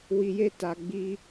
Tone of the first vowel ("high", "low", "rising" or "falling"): low